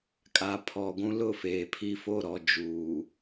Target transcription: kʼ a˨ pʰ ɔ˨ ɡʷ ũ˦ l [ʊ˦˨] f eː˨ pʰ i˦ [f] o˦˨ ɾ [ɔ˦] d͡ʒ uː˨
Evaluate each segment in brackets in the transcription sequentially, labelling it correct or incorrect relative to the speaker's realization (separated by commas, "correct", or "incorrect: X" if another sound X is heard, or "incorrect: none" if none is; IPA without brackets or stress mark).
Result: correct, correct, incorrect: ɔ˨